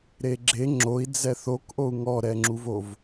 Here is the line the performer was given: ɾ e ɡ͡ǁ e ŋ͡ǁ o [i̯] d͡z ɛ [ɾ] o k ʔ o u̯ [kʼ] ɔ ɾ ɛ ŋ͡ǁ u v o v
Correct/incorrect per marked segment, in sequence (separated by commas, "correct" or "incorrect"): correct, incorrect, incorrect